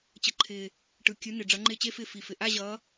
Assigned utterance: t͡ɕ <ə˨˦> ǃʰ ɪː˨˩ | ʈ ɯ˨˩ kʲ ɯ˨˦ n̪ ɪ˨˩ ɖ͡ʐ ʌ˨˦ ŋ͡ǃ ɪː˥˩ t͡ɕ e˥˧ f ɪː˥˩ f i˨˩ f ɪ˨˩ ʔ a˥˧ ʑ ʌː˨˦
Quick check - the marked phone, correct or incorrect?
correct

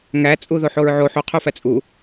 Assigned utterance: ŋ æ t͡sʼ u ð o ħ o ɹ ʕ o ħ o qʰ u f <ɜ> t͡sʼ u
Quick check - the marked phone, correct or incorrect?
incorrect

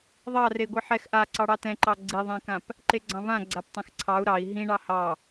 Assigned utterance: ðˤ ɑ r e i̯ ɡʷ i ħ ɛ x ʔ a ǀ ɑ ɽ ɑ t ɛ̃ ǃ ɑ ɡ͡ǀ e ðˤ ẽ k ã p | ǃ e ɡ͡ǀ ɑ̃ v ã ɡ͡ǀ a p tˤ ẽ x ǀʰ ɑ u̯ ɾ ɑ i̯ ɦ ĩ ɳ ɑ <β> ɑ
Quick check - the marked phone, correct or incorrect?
incorrect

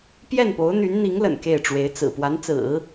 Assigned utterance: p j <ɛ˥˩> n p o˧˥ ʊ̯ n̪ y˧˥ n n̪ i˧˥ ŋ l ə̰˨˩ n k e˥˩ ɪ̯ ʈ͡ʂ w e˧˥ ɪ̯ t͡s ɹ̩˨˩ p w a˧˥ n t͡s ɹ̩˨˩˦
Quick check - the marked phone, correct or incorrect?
correct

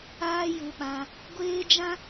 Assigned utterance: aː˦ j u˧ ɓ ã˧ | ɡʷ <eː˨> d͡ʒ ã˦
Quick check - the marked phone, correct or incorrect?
incorrect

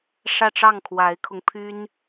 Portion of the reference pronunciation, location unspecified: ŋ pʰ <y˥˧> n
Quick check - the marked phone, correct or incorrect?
incorrect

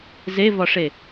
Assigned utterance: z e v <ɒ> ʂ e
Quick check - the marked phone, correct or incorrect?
correct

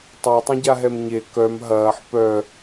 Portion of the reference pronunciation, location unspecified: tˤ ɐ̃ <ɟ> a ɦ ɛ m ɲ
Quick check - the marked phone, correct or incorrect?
correct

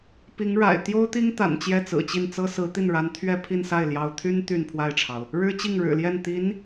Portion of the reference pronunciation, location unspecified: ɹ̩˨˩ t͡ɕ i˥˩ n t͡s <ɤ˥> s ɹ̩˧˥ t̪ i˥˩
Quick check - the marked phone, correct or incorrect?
correct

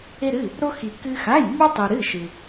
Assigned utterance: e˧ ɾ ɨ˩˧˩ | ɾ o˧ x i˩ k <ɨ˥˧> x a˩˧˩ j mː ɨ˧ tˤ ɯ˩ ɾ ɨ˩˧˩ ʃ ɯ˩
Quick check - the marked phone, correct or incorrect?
incorrect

